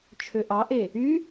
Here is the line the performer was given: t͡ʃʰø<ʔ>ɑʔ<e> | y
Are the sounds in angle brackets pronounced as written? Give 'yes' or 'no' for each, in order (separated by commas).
yes, yes